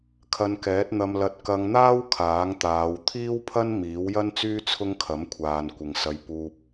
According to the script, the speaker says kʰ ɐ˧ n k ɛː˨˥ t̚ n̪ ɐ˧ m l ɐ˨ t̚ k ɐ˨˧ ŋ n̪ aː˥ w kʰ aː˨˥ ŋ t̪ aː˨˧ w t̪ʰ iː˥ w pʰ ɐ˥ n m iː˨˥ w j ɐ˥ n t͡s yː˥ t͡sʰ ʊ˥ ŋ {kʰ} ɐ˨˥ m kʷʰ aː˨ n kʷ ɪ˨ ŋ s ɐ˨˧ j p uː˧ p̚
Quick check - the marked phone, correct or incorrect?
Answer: correct